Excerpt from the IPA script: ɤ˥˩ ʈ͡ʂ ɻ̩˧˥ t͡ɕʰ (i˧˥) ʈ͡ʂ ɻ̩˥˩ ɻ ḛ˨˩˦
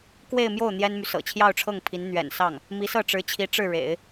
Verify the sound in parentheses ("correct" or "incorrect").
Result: correct